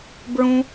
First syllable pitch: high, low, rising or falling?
high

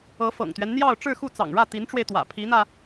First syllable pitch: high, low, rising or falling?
rising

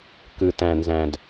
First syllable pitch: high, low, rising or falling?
low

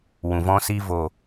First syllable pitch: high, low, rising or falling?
low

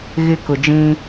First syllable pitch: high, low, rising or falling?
high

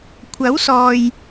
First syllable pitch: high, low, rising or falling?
rising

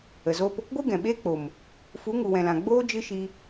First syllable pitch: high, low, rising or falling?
low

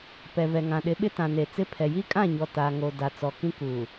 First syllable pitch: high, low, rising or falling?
low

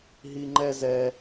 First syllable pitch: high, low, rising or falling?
high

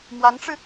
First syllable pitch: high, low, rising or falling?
rising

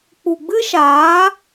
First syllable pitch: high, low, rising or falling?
low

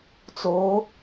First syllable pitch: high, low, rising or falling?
rising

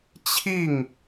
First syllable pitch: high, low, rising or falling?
falling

